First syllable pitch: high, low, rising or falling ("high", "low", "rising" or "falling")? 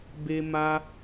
high